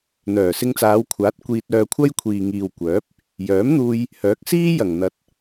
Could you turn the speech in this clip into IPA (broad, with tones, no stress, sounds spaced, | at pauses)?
n̪ œː˨˩ s ɪ˧ ŋ t͡s aː˨˧ w kʷʰ aː˨˥ t̚ kʷ iː˧ t̚ œː˧ kʷʰ ɐ˥ j kʷʰ iː˨ ŋ iː˨ w kʷ œː˨˥ p̚ | j œː˨˥ m n̪ uː˧ j | h œː˨˥ k̚ s iː˥ j ɐ˨˩ ŋ n̪ ɐ˨˥ t̚